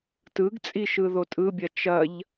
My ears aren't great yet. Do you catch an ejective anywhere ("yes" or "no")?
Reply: yes